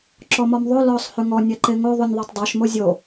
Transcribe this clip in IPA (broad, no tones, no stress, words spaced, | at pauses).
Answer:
ǁɔmɔmðˤo lɔsˤ hʉŋɔ nʲɛǃeŋo ðˤʉnʲðˤotˤdˤoʃ mozʲo